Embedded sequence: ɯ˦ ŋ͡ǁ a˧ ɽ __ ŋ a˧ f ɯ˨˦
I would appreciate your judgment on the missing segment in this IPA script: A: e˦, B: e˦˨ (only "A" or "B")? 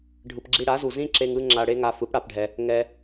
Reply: A